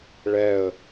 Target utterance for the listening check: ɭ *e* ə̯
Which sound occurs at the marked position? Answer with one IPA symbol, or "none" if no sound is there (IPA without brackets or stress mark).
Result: ɛ